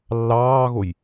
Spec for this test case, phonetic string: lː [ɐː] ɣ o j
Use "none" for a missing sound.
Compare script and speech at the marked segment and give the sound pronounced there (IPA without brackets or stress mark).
ɑː